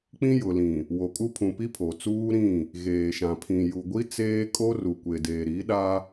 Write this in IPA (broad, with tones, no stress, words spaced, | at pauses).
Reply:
k͡pĩ˦jʊ˨lĩ˨ | wo˨kʼu˦pʰũ˨ pi˦pʰo˨t͡suː˦ɾĩ˦˨ | ɣeː˨ʃã˨pʰĩ˨ ju˨ɡʷi˦ t͡seː˦kʼo˦ ru˨ kʷe˨deː˨ɾi˨˦ɗa˦